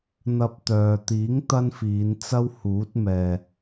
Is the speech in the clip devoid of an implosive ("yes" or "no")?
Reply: yes